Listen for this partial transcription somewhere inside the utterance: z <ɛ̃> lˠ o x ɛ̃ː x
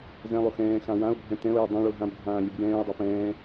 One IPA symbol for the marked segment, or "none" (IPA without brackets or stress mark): ɛ̃